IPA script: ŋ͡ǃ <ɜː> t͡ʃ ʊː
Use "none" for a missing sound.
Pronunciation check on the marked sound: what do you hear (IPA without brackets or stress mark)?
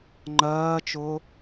ɜː